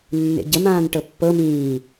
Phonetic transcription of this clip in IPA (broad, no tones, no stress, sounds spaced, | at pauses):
nː ḛ ɟ ə m ãː n ʈ ɤ pː ɤ m ĩː